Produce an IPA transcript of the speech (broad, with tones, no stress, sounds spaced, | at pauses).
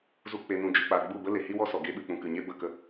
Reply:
z u˧ k͡p e˨ n ũ˨ d͡ʒ ɨ˨ k͡p a˨ ɡ͡b u˦˨ b ə˦ l e˨ h i˦ w ɔ˦ s ɔ˨ ɡ e˧ ɓ ɨ˨ k͡p ũ˨ k ɨ˨ ɲ e˦ b ə˦˨ k ə˦